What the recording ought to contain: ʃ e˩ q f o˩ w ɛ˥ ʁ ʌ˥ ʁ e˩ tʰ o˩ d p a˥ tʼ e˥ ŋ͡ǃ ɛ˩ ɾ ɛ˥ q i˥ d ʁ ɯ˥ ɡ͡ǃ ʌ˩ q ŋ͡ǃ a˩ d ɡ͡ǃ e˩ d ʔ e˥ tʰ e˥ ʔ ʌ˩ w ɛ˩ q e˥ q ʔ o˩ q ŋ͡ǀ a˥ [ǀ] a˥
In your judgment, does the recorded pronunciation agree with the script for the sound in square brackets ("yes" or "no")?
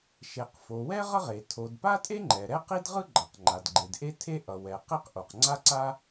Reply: yes